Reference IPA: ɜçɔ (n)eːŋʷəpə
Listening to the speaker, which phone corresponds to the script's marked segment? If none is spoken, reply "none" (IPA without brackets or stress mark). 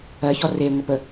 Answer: r